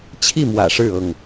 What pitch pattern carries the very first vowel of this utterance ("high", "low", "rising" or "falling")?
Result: falling